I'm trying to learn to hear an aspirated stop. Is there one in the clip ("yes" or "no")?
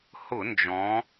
no